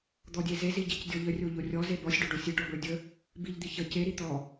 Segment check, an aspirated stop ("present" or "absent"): absent